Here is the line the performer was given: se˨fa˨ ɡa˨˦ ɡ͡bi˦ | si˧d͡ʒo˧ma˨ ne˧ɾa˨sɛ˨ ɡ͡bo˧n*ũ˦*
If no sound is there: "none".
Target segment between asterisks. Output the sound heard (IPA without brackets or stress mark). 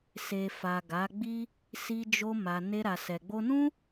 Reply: ũ˦